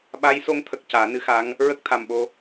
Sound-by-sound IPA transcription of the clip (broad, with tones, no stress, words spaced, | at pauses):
ɓa˧˥j so˧˥ŋt̪ʰə˨˩k̚ caː˨˩˦nɨ˧˥xa˧˥ŋ | ɹə˦˥k̚t̪ʰa˨˩mɓo˧